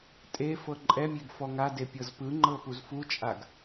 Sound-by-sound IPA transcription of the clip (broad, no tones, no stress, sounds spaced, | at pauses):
tʼ e f ɤ ǃʼ ɛ mʲ e ɡ f ɔ ŋ a d e pʲ ɤ z p ɯ ŋ͡ǃ ɤ p u z f u t͡ʃʼ a ɡ